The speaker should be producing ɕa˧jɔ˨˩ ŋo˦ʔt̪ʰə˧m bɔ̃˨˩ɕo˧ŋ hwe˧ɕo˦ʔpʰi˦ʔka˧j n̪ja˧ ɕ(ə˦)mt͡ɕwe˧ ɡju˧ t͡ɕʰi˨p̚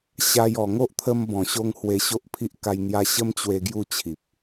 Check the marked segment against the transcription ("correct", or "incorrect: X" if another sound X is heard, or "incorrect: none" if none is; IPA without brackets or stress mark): correct